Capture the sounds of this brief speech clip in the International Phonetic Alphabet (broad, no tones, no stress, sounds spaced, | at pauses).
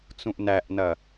t͡s ũ ʔ n æ ʔ n ɐ